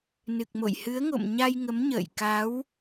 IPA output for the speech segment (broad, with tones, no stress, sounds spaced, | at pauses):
n ɨ˨˩ k̚ m o̰˧˨ j h ɨ˨˦ ə̯ ŋ o̰˧˨ m ɲ a˧ j ŋ ə˨˦ m ɲ ə̰ː˧˨ j k a˨˦ w